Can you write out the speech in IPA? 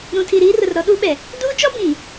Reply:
ɾ ũ˨ tʰ i˨ ɾ iː˦ r ʊ˨ r ɾ ɔ˦ ɗ u˦ ɓ ɛ˨ | d uː˦ t͡ʃ ɔ˦ b ĩ˨

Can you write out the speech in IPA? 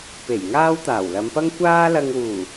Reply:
p e˨˩ j ŋ aː˥ w t̪ aː˨˩ w l ɐ˨˧ m p ɐ˥ ŋ kʷ aː˥ l ɐ˧ ŋ w uː˨˩

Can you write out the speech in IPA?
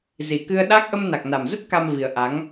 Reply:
z i˨˩ k ɨ˧ ə̯ ɗ a˦˥ k̚ ʔ ə˧ m n a˨˩ k̚ n a˨˩ m z ə˦˥ t̚ k a˧ m v i˨˩ ə̯ ʔ a˨˦ ŋ

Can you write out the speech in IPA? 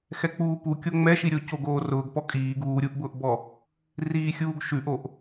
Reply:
x ɛ k͡p uː p u kʲ o ŋ͡m ɛ ʃ i ɾʲ o c o ɡ oː r ʊː ɡ p ɔ kʼ iː ɡ uː ɾʲ u ʔ b ʊː ʔ b ɔ | r iː xʲ uː ɡ ʃ ʉ ʔ o ʔ

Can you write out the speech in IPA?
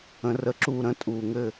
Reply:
ə̃˨˦ r ə˨˦ ǁ uː˥˨ ɾ ə̃˨˦ tʼ uː˨˩ ŋ ɘ˥˨

